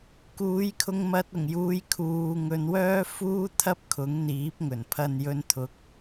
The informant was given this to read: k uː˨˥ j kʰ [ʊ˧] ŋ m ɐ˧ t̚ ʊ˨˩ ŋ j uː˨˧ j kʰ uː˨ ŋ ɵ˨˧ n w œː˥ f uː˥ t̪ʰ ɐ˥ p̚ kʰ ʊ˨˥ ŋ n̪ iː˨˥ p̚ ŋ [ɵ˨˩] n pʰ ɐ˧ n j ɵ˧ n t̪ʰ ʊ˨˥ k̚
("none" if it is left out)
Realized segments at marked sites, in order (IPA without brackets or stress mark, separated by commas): ʊ˧, ɵ˨˩